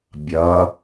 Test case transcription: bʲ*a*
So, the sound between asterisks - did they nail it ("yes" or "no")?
no